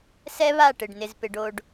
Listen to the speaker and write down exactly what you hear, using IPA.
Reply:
s ɛ˦ β a˦˨ ʈ ɪ˨ ɖ n ɪ˨ z p ɪ˨ ɖ o˨ ɖ

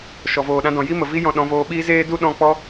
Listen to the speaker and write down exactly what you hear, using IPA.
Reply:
ʃ ɔ˨ v oː˨ ɗ ã˧ d ɔ̃˨ j i˦ m ə˨ v i˦ j ɔ̃˧ ɗ ɔ̃˨˦ v oː˧ ɓ iː˦ z eː˦ d u˦ ɗ ɔ̃˦˨ k͡p ɔ˦

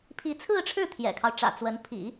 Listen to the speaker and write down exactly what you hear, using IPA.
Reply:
pʰ i˧˥ t͡sʰ ɹ̩˥˧ ʈ͡ʂʰ ɻ̩˥˩ t̪ʰ j ɛ̰˨˩ kʰ ɑ˦ ʊ̯ ʈ͡ʂ ä̰˨˩ t͡s w ə˧˥ n pʰ ḭ˨˩˦

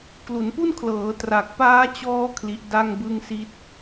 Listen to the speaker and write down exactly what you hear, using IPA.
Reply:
k l u˩˦ n p u˥˩ n kʰ l ɤː˩˦ t r aː˨˩ k̚ p aː˦˥ t͡ɕ ɔː˦˥ kʰ l i˦˥ ʔ d a˥˩ ŋ b ɯ˥˩ ŋ s i˦˥ t̚

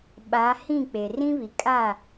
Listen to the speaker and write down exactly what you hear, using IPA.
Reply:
ɓ a˨˦ h ĩ˦˨ k͡p e˨ r ĩ˦ β i˨ kʼ a˦˨

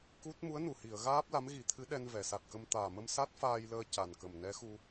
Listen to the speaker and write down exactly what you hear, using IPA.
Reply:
k u˦˥ t̚ m u˧˥ ə̯ n u˨˩ h i˨˩˨ ə̯ ɣ aː˦˥ p̚ l a˧˥ m ɣ i˨˩˦ t̪ʰ ɨ˧˥ ɗ ɛ˧ n v ɛ˨˩˨ s a˨˩ t̚ k ə˧ m t̪ aː˨˩ m ə˧ m s a˦˥ t̚ f aː˧ j l əː˧ c a˨˩ n k ə˨˩ m n ɛ˧˥ x u˧

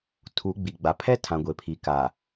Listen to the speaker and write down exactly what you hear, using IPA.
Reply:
tʰ u˨˦ ɡ͡b i˨ ɡ͡b a˨ pʰ ɛ˦ tʰ ã˨ ɡʷ e˨ pʰ i˨ k a˨

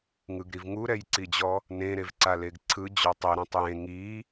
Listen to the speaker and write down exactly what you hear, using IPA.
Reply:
ŋ ɯ ɡ ɾ i v ŋ u ɾ ɛ j ǀ i d͡ʑ ɔ | n ẽ ɾ e v ǀ a l e ɡ ǀʰ ɯ d͡ʑ ɔ tˤ e ɾ õ tˤ j ẽ ŋ i

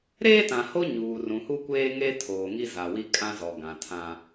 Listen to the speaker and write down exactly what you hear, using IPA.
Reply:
ɾ eː˦ t ã˨ h o˦ ɲ uː˨ r ũ˨ h u˦ kʷ eː˦ ŋ e˦ tʰ oː˨ ŋ i˦ z a˨ w i˦ kʼ ã˦ z ɔ˨ ɡ ã˨ tʰ ã˦

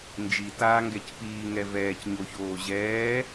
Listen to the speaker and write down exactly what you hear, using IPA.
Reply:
n d͡ʒ i t aː ŋ ɡ ɛ c p iː ŋ ɛ v ɛː c ɲ o ç oː ʑ ɛː

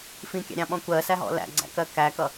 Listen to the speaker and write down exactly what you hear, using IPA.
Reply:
f ĩ kʲ æ̰ ɾʲ ɑ̃ ɓ ɔ̃ kʷ ɜ s æ ɦ ɔ̰ l æ̰ ɡ͡ǀ æ̰ k ɜ k æ k ʌ

